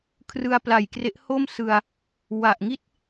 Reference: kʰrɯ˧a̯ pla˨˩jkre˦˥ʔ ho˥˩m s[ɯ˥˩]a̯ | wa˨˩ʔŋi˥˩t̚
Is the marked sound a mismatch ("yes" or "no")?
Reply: yes